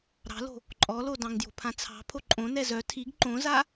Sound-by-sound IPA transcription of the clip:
ɾ ɑ̤ l o̤ | ǃʼ ɔ l o d ɑ̃ ŋ d j o̤ pʰ ã t͡sʰ ɑ̤ pʰ o ǃʼ õ n ɛ z œ tʰ i ɡ ǃ õ z a

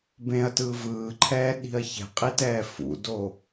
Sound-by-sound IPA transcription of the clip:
b ẽ ɐ̯ t ɯ v ɯː ǃʰ ɛː ɗ i̤ ɐ̯ ç ɛ̤ qʼ i t ɛː f ṵ d o

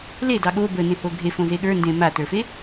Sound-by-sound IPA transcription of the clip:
l e d ɑ ɠ o b ə n ẽ h o ɡʱ e f õ z e ɠ ə˞ n d ẽ m a t ə˞ f e

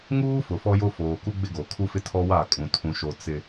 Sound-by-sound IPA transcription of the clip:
ŋ uː˦ f ʊ˨ f ɔ˦ j o˦ f oː˨ k u˦ ɡ͡b ɪ˦ ɡ o˨ kʰ u˦ f ɪ˦ tʰ ɔ˦ w aː˦˨ kʼ ũ˨ tʰ ũ˨ ʃ o˨ t͡s ɪ˨

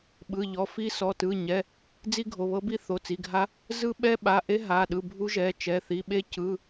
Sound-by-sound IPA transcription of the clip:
ɓ ɯ˩˧˩ ʎ ɔ˩˧˩ f i˦˥ s ɔ˩˧˩ t ɯ˩˧˩ ɲ ɛ˩˧˩ | d͡z i˦˥ ɡʱ o˩˧˩ β ɤ˦˥ b i˦˥ θ o˩˧˩ t͡s i˩˧˩ ɡʱ a˦˥ | z ɯ˦˥ ɓ ɛ˦˥ ɓ a˩˧˩ ʔ e˦˥ ɦ a˩˧˩ ɗ ɯ˩˧˩ bʱ u˦˥ ʒ ɛ˩˧˩ t͡ʃ ɛ˩˧˩ θ i˩˧˩ ɓ e˦˥ c ɯ˩˧˩

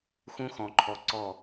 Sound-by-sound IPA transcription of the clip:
x ũ˦ x ɔ̃˨ ǃʰ ɔ˨ ǀ ɔ˦˨

